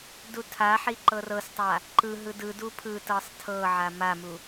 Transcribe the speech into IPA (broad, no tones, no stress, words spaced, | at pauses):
dutʰaħi ǃɤrɤstˤa | ǃɯ ɦɯdɯdu pʰɯtɤsˤ tʰɤʕa mamu